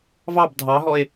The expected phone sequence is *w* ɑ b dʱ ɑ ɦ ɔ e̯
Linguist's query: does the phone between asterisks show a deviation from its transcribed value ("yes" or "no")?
yes